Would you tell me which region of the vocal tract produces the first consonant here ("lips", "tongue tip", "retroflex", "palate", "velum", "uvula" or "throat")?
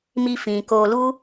lips